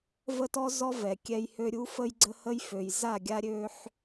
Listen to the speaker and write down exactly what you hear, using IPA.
v ə˦ t ɔ˦ z ɔ˦ v ɛ˨ kʲ ɛ˧ j h ø˧ ɾʲ u˦ f ə˦ j ɡ͡ǀ ə˦ h ə˦ j f ø˨ j z a˦˨ ɡʲ a˦ ɾʲ ø˦ ħ

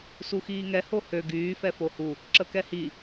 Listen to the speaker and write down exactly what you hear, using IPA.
s u x iː ŋ ɛ h o h ø ɡ yː f ɛ f o h u | ǁ ə k ɛ h i

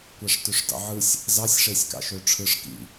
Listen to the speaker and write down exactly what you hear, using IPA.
kʷ æ ʂ t ø ʂ d ɑ̰ ʕ ɯ sʲ | z ɑ sʲ ʂ e sʲ k ɑ̰ ʃ ø ʈ͡ʂʰ ɯ ʂ k ḭ

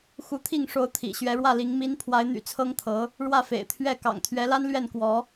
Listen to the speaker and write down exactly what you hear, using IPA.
x u˧˥ t̪ʰ i˥˩ ŋ ʂ o˧˥ ʊ̯ t̪ʰ ḭ˨˩ ɕ ɥ ɛ˧˥ ɻ w ä˥˩ l i˧˥ ŋ m i˧˥ n pʰ w a˧˥ ɪ̯ n̪ y̰˨˩ t͡sʰ ɤ˥ ŋ t̪ʰ ɤ˧˥ | ɻ w ä˥˩ f ḛ˨˩ ɪ̯ t̪ʰ ɥ ɛ˥˩ k ɑ̰˨˩ ŋ t̪ʰ ɥ ɛ˧˥ l a˥ n l ɥ ɛ˥˩ n k w ɔ˧˥

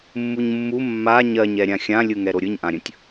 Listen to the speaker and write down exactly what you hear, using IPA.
mː u ɲ mː u mː a ɲ ɜ ɲ ɛ ɾʲ ã xʲ ã lʲ ɯ ŋ ɛ ɾ o ɾʲ ɯ ɲ ʔ ã ɾʲ ə̃ tʲ

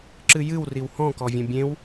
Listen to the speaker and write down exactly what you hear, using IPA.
ǁ ɨ j ɨ w r i w h ɔ̃ k ɔ vʲ ã bʲ ẽ w

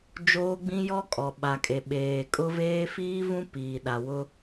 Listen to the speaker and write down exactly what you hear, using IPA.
d͡ʒ oː˦ ɡ͡b ĩ˦ j ɔ˦ kʼ ɔ˨ ɓ a˨ kʼ e˨ ɓ eː˨ kʼ ʊ˦ v eː˦ f iː˦ v ũ˦ p iː˨ ɗ a˨ w ʊ˦

